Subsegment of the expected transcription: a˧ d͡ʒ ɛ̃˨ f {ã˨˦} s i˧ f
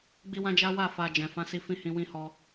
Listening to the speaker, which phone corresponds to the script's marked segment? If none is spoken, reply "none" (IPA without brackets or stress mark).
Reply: ã˨˦